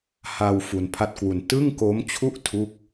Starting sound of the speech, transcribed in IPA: h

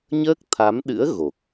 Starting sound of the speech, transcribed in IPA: ɲ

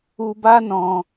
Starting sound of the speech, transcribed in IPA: u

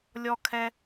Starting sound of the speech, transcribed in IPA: lʲ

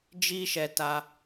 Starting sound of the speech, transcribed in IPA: d͡ʒ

